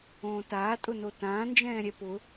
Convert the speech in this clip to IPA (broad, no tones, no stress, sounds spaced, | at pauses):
õː t aː tʼ ʊ n o t ãː n d͡ʒ ɛ̃ː ɾʲ ɛ p ʊ